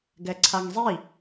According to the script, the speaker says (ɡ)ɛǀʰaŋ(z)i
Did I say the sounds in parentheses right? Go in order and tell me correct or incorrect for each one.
correct, incorrect

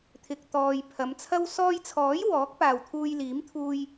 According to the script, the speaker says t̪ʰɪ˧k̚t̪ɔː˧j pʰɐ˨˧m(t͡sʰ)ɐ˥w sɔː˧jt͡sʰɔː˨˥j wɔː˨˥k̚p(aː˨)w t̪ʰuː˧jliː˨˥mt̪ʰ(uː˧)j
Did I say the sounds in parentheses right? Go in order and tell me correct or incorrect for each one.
correct, correct, correct

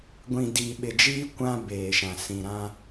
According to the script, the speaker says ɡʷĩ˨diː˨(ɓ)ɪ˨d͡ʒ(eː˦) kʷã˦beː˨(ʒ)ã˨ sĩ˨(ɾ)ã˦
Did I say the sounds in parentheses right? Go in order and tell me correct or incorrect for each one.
correct, incorrect, incorrect, correct

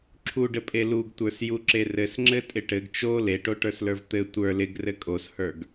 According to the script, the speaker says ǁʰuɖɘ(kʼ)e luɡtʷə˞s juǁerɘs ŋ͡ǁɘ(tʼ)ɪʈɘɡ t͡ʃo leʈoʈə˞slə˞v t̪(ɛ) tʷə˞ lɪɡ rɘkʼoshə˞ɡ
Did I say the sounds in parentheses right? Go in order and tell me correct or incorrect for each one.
incorrect, correct, incorrect

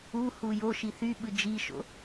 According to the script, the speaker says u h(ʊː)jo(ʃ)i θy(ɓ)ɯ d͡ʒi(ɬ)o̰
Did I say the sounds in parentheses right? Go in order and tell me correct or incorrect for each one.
incorrect, correct, correct, incorrect

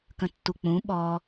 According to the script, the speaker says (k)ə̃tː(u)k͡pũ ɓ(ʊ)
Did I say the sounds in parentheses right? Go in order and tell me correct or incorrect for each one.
correct, correct, incorrect

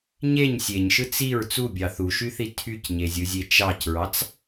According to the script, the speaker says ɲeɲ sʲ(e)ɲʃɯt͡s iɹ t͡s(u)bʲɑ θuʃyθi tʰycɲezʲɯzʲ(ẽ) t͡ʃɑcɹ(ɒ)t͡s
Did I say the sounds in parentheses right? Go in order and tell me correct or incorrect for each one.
correct, correct, incorrect, incorrect

